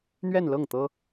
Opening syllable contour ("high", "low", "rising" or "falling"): falling